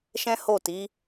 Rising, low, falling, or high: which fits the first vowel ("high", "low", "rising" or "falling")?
high